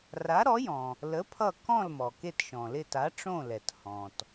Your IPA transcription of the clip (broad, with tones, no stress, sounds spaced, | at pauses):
r a˨˥ ɾ ɔ˨˥ j ɔ̃˩ | l ə˨˥ pʰ ʌ˦˨ k ɔ̃˦˨ l m ɔ˩ k e˦˨ t ʃ ɔ̃˩ l ɪ˦˨ t a˨˥ ʈ͡ʂ õ˦˨ l ɛ˩ t h ɔ̃˩ t